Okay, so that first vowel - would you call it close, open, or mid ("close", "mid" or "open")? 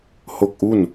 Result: mid